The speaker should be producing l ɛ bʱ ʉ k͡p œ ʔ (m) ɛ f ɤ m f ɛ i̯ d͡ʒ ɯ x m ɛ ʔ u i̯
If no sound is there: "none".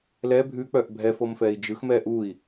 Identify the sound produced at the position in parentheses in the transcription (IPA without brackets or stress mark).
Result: bʱ